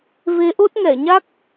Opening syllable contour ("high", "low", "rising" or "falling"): rising